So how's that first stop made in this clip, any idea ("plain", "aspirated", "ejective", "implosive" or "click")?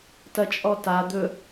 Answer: plain